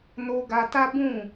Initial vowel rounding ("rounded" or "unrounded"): rounded